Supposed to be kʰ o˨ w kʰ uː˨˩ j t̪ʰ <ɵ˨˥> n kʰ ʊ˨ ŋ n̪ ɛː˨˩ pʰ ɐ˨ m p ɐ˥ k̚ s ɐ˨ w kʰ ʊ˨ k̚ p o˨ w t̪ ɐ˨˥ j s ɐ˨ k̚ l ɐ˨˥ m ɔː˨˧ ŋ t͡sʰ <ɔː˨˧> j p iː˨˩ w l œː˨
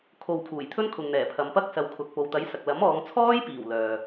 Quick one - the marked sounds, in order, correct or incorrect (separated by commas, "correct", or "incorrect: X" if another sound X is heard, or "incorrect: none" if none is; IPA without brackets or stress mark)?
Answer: incorrect: ɵ˥, incorrect: ɔː˥